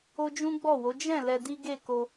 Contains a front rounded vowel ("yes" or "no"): no